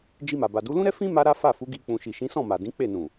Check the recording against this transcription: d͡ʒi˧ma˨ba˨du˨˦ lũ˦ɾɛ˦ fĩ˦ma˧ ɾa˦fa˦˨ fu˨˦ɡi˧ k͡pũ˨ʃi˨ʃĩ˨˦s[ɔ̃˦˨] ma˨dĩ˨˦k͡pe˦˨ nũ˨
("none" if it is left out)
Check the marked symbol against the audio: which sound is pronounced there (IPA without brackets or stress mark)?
ɔ̃˦˨